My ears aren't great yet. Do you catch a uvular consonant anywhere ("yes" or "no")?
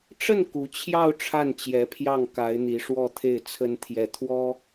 no